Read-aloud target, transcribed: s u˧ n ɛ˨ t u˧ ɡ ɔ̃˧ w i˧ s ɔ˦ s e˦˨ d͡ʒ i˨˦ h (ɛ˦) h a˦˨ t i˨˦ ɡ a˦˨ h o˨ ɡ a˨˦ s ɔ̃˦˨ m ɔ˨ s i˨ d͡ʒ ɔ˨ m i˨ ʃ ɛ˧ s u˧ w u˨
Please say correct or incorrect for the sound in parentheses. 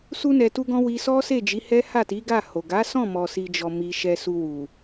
correct